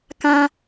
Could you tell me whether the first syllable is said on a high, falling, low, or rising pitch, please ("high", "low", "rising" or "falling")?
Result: high